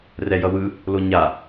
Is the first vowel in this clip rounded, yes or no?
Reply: no